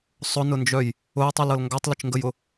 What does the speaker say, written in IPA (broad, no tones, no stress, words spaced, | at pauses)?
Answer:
sˤʊnʊnd͡ʒœj | ʊjtˤilɤl ŋɡatˤlət͡ʃŋɡəjʊ